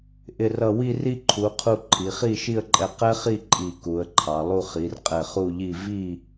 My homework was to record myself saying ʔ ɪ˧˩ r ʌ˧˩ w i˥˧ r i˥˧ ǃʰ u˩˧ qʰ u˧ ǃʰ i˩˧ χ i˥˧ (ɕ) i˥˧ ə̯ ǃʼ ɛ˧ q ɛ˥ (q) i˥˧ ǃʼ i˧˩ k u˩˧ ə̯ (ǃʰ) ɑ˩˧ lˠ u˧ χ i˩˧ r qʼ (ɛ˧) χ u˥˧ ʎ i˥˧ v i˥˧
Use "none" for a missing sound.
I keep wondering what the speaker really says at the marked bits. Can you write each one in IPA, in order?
ʃ, χ, ǃʰ, ɛ˧˩

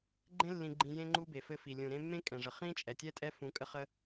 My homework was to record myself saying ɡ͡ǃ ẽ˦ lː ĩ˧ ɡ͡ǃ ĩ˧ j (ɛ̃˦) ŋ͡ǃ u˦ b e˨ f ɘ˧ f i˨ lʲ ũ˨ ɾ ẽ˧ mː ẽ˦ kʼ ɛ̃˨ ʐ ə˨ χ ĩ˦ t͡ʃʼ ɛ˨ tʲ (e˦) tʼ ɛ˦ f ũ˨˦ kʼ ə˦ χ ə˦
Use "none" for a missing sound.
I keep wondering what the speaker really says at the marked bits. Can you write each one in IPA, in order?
ẽ˦, ɛ˦

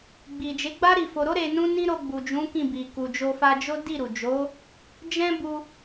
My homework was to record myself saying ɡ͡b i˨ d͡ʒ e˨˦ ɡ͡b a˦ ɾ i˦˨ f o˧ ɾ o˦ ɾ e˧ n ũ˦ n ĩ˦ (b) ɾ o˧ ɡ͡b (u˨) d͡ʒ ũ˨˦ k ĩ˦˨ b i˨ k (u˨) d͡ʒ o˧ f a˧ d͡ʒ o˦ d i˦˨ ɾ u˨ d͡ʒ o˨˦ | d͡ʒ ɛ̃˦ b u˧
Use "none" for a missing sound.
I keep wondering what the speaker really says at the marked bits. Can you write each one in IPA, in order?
none, u˨, u˨

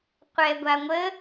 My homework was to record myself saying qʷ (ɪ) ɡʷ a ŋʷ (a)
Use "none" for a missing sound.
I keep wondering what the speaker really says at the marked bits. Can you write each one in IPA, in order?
ɛ, ə

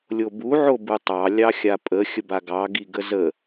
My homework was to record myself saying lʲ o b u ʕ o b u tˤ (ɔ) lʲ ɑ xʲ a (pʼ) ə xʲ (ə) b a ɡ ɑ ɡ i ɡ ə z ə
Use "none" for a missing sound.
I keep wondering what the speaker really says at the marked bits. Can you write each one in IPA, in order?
ɑ, pʼ, ə

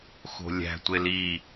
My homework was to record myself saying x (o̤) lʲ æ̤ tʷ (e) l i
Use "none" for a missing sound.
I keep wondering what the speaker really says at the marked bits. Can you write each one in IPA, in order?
o̤, e

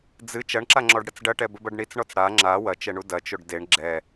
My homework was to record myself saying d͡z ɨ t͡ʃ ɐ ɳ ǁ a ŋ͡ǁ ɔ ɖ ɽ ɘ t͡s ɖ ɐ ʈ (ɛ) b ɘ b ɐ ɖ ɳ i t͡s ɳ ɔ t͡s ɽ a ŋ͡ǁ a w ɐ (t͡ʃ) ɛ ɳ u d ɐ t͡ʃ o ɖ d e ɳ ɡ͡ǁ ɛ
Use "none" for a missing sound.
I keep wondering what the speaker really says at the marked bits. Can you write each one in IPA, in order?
ɛ, t͡ʃ

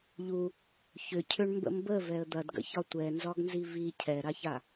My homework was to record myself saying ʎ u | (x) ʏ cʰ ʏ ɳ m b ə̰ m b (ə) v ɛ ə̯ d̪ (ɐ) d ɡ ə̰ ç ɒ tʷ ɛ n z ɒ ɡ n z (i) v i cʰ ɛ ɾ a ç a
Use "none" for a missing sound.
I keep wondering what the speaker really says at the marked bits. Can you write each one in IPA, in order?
ç, ə, ɐ, i

